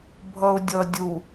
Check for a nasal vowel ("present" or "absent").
absent